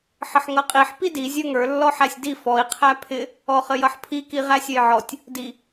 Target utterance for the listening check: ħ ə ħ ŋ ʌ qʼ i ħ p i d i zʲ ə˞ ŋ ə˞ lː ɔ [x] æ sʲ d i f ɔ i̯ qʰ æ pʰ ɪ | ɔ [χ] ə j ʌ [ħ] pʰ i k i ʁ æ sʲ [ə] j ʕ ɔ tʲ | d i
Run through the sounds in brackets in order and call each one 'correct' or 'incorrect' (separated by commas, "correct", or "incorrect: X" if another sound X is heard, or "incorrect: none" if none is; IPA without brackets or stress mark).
incorrect: ħ, correct, correct, incorrect: ʌ